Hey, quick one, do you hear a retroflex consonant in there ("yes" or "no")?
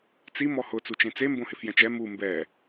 no